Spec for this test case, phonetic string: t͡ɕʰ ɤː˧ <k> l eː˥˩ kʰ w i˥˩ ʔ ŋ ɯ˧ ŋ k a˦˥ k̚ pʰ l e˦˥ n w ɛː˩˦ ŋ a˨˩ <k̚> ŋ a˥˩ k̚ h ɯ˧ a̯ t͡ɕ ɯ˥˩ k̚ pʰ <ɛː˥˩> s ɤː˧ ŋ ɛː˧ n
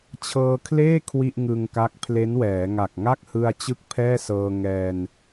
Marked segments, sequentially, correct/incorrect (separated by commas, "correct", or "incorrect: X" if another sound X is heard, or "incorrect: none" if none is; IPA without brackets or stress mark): incorrect: kʰ, correct, correct